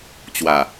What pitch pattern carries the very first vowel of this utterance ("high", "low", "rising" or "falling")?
low